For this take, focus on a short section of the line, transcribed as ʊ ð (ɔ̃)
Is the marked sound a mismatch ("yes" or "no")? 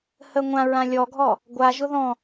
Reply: no